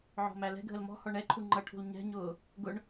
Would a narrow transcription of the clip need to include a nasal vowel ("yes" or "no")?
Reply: no